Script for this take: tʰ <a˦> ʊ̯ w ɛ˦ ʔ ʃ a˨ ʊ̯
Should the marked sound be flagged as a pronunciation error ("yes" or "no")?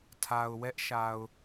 yes